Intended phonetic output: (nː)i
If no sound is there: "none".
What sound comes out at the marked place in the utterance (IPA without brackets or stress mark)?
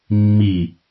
mː